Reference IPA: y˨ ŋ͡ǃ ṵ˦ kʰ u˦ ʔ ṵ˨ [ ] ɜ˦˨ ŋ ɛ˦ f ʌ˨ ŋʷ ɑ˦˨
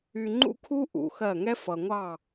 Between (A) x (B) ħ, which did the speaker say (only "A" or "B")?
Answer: A